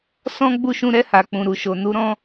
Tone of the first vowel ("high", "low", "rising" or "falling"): high